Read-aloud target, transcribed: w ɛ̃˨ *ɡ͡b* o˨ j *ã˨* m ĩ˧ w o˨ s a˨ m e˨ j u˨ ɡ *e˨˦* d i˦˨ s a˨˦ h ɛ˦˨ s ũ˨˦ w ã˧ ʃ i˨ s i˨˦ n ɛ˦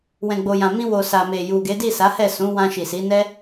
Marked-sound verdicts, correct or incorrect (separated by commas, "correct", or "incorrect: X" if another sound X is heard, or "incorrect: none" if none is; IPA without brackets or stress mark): correct, correct, correct